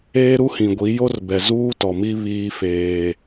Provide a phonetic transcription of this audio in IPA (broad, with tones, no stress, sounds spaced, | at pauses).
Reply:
eː˦ ɾ u˦ h ĩ˨ ɡʷ i˨˦ j o˦ r b ɛ˨ z uː˦ t ɔ˨ m i˦ β iː˦ f eː˦